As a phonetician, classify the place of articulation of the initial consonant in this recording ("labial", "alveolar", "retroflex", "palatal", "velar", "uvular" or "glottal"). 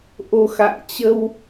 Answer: glottal